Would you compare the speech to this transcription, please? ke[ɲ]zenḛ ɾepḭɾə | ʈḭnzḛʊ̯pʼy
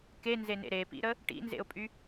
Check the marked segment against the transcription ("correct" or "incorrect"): incorrect